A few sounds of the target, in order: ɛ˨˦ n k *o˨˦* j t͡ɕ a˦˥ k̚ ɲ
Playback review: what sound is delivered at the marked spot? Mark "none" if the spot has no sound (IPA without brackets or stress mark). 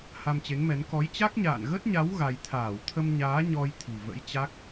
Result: ɔ˨˦